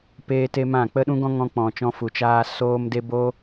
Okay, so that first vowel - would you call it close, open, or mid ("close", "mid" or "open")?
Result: mid